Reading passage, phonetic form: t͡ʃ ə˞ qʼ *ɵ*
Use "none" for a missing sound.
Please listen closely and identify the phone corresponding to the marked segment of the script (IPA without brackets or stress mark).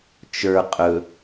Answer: ɵ